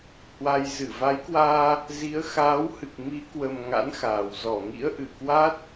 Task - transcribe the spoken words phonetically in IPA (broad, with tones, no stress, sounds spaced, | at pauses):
h w a˧ j z ɨ˧˩ v a˨˦ j k w aː˧ | z i˨˦ ə̯ x aː˨˦ w h ɨ˨˩ k̚ m i˨˦ k w ə˨˩ m ŋ a̰˧˥ n x aː˨˩ w z ɔ˧˩ ŋ ḭ˧˥ ə̯ ʔ ɨ˧˩ k w a˦˥ t̚